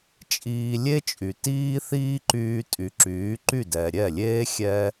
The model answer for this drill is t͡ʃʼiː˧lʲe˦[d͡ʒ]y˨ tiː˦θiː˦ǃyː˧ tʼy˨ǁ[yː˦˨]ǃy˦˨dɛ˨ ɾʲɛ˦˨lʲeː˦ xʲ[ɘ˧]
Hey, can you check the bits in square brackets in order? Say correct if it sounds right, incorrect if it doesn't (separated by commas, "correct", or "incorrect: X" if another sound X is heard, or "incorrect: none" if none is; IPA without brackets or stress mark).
incorrect: t͡ʃʼ, incorrect: yː˨˦, incorrect: ɛ˧